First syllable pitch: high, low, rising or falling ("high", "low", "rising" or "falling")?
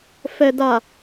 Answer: low